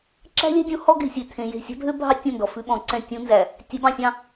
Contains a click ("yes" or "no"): yes